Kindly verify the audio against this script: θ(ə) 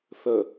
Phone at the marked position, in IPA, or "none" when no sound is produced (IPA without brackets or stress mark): ə